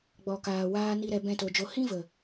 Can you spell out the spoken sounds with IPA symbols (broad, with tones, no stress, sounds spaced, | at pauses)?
ɡ͡b ɔ˨ k aː˨ w aː˧ n i˦ ɾ ɛ˧ b ɛ̃˦ t o˧ d͡ʒ o˦ h ĩ˦ v ə˨